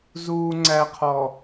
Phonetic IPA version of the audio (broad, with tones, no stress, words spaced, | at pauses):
zuː˨ŋ͡ǀæ˨qʰɔ˨